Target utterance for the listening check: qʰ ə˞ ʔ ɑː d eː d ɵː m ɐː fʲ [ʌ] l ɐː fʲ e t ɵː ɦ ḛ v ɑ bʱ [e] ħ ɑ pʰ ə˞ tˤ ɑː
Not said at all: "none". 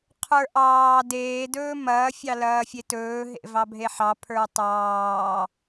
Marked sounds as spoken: ɑ, e

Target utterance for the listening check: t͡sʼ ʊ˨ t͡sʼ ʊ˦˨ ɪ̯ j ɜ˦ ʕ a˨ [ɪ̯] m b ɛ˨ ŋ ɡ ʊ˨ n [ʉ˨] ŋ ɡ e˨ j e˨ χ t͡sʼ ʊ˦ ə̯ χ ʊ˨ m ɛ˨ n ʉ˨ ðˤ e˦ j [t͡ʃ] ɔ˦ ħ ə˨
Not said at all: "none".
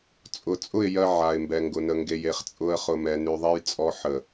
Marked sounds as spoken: ɪ̯, ə˨, t͡sʼ

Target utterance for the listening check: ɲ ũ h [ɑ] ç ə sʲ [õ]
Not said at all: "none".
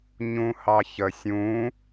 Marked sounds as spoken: ɑ, ũ

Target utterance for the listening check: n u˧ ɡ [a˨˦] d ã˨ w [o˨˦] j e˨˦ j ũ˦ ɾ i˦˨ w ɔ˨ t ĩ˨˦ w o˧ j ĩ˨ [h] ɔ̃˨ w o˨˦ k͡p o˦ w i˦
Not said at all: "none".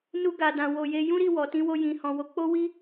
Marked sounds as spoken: a˨, o˨, h

